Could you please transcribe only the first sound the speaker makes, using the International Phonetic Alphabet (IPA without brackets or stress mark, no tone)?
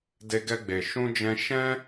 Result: d